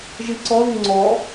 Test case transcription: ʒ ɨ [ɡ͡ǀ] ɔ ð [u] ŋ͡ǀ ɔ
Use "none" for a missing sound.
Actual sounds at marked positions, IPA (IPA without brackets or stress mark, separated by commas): ǀ, u